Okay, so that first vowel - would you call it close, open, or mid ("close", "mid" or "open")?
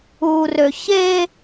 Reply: close